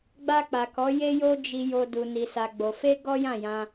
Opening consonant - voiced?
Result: yes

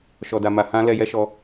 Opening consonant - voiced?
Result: no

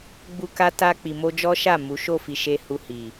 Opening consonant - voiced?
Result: yes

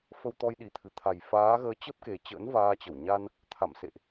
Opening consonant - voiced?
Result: no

